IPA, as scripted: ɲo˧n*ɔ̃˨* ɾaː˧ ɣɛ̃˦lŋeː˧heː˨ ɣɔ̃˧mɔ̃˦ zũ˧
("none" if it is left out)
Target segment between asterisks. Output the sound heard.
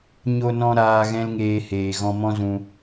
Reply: ɔ̃˧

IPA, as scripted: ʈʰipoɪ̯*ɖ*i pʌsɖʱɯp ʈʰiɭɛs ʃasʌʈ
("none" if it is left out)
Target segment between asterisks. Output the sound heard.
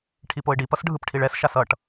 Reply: ɖ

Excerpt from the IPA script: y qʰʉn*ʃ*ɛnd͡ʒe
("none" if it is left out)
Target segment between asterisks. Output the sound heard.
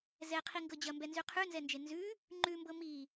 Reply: z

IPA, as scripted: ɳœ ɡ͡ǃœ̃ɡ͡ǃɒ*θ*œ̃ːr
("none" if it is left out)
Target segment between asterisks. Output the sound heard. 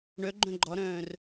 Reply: ɾ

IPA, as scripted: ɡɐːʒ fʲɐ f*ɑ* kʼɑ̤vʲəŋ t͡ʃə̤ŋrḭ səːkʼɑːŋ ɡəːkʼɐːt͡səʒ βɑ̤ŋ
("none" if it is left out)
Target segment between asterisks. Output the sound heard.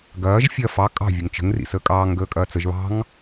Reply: ɑ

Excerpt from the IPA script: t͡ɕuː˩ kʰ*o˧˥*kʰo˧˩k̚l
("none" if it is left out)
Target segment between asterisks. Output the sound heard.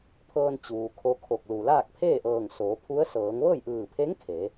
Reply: o˧˥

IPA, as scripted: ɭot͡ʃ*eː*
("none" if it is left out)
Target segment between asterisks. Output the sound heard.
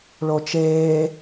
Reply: eː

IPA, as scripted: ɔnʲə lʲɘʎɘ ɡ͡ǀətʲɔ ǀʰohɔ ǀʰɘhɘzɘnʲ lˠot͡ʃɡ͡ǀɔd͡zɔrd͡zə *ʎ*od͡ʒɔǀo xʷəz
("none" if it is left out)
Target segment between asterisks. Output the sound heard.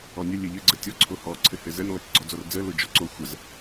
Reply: l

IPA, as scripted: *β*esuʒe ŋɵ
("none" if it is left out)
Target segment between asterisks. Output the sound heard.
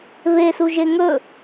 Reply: β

